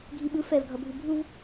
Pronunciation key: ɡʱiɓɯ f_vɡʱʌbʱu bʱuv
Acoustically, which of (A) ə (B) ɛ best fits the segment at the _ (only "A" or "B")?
B